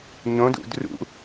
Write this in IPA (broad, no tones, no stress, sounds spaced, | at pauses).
ɲ õ d ṵ d r ṵ